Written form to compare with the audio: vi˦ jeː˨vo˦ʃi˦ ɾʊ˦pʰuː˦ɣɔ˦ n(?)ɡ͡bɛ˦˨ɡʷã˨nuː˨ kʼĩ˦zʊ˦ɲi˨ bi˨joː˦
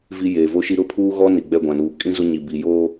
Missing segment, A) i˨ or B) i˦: A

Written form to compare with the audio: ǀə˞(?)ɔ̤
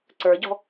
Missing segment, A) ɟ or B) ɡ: A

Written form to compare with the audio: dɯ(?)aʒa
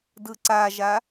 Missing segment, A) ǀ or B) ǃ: A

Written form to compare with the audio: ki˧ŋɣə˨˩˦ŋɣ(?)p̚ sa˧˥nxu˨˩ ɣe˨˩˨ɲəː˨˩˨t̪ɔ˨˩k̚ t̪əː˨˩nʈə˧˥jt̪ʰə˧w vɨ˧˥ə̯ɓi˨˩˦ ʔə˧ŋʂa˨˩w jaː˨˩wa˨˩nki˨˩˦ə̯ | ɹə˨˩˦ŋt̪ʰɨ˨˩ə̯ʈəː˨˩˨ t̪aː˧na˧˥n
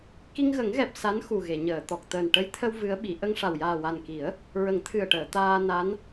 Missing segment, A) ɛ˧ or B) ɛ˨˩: B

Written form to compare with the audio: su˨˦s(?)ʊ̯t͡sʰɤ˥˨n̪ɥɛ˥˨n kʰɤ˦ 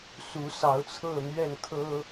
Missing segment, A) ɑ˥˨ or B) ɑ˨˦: B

